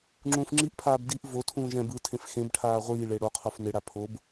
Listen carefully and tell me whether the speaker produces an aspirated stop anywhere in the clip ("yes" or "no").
yes